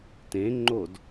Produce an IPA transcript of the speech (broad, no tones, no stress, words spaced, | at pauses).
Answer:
tẽŋ͡ǃod